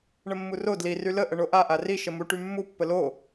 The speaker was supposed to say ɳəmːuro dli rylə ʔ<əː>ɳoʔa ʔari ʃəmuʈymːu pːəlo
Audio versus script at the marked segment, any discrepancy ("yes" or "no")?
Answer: yes